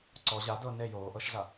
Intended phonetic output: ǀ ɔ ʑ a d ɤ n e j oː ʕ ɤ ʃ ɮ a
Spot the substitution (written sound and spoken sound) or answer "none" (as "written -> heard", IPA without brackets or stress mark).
ʕ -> ʔ